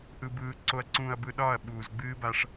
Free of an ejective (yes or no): yes